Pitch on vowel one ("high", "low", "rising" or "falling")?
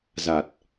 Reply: low